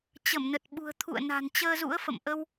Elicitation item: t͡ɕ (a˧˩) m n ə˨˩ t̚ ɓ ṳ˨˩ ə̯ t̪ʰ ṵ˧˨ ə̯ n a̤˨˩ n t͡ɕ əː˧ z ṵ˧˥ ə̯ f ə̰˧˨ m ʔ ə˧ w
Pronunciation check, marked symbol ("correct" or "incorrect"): incorrect